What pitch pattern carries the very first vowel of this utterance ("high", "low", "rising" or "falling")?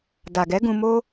low